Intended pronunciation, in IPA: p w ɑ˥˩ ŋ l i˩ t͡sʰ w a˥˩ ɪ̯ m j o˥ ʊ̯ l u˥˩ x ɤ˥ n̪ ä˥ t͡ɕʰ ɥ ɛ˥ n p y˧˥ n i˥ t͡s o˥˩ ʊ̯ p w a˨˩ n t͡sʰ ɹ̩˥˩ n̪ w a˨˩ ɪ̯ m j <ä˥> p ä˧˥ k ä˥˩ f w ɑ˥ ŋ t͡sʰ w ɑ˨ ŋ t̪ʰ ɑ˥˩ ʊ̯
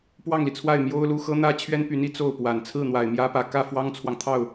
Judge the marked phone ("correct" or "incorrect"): correct